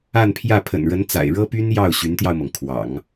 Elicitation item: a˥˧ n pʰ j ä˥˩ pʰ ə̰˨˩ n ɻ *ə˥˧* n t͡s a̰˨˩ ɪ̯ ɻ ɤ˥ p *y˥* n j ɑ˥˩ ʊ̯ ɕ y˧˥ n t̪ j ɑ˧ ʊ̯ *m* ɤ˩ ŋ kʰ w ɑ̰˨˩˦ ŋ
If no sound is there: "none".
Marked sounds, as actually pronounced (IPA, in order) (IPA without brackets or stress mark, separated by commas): ə˧˥, y˥, m